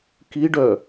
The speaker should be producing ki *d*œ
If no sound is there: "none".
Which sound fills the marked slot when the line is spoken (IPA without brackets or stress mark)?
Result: ɖ